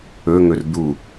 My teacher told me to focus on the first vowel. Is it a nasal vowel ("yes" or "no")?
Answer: no